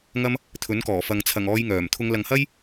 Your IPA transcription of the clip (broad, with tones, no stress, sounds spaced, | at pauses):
ŋ ɐ˥ m | t̪ʰ ɵ˨˥ n k ɔː˨˩ f ɐ˨˧ ŋ t͡sʰ ɐ˨˩ ŋ ɔː˨˧ j ŋ œː˨˩ m t̪ʰ ʊ˨˧ ŋ l ɐ˨ ŋ h ɐ˥ j